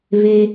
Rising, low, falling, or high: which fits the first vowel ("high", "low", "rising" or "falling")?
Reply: high